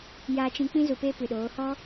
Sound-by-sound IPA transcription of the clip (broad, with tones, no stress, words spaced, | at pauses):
jaː˧t͡ʃĩ˧k͡pĩ˦ zu˧peː˦pɨ˨ɗoː˨˦ hɔ˦